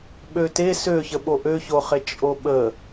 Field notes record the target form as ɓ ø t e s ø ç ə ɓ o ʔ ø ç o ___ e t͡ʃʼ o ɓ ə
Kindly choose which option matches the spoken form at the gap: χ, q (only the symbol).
χ